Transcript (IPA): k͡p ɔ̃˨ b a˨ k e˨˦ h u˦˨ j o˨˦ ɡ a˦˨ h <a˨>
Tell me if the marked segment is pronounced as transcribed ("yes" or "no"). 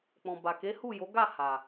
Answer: yes